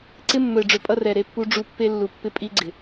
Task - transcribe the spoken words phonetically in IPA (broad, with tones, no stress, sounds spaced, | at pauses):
ǀ ɪ˦ mː ɵ˨ ɪ̯ ɖ͡ʐ ɵ˨ pʼ ʌ˦ r ɛ˨ ɾ e˦ pː u˦ ɖ͡ʐ u˦ pː e˦ lː u˨ pː ɪ˦ pʼ i˦ ɡ͡ǀ ɪ˨